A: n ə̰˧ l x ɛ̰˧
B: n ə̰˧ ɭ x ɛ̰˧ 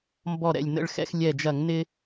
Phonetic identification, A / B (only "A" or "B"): B